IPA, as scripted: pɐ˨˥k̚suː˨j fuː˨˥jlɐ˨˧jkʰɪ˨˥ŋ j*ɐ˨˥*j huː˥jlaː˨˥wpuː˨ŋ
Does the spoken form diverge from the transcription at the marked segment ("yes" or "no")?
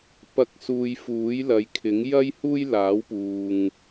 yes